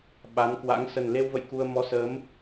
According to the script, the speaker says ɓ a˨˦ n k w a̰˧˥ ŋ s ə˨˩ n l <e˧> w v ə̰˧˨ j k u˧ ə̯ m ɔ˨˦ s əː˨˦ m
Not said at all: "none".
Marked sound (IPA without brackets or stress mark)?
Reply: e˧